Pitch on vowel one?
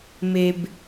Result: low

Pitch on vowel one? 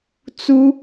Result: high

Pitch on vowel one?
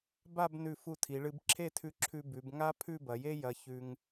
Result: falling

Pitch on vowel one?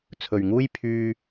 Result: low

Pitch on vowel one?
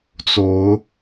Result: rising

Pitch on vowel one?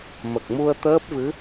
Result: low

